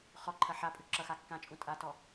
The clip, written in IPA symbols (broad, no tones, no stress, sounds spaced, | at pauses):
χ ɔ ǃʰ ɐ ħ a pʼ ʉ ǁ ʌ x a kː ã t͡ʃʼ ũ tʼ a t ɔ